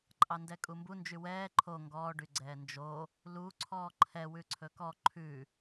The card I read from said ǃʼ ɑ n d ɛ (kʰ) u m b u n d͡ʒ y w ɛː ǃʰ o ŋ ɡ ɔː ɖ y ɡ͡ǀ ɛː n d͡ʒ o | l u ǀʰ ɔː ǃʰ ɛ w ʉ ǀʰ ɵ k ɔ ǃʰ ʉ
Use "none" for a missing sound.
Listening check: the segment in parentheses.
kʼ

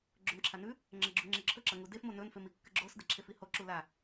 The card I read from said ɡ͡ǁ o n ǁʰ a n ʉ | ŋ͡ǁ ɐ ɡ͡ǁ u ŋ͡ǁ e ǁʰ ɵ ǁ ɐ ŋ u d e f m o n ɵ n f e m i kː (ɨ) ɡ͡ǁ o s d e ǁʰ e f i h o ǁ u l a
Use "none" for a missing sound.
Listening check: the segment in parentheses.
ɨ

